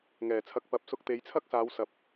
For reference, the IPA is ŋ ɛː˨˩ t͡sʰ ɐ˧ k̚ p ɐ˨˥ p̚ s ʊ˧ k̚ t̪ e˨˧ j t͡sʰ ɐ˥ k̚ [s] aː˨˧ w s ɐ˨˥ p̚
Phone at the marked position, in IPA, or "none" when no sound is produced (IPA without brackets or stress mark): s